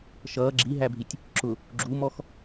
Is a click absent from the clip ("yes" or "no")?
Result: no